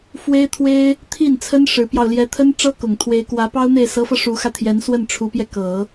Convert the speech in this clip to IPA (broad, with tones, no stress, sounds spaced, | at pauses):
f w e˥ ɪ̯ t̪ʰ w e˥ ɪ̯ | t̪ʰ i˥˩ n t͡sʰ ə˥ n ʂ ɻ̩˧˥ p j ɑ˧ ʊ̯ l j ɛ˧˥ t̪ʰ ə˥ n ʈ͡ʂ ɤ˥ k ʊ˨˩ ŋ t̪ʰ w e˧˥ ɪ̯ k w ä˧˥ p ɑ˥ ʊ̯ n̪ e˥˩ ɪ̯ s ɤ˧˥ f ɤ˧ ʂ u˧˥ x ä˧ t̪ʰ j ɛ˧˥ n s w ə˥˩ n ʈ͡ʂʰ u˧˥ p j ɛ˧ k ɤ˨˩˦